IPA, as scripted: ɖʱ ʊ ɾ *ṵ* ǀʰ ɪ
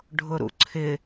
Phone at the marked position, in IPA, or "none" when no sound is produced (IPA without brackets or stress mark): ṵ